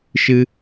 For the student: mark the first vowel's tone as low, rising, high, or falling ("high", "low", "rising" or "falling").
high